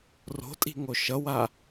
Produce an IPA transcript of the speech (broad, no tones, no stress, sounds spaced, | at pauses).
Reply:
r o̤ tʼ i̤ ŋ o ʃ ʌ w a